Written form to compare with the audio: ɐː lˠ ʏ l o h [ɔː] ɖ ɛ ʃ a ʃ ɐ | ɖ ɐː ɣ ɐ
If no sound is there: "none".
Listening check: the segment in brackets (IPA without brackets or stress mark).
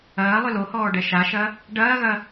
ɔː